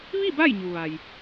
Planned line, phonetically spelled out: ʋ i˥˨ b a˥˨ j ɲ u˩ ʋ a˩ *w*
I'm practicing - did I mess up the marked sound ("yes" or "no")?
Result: yes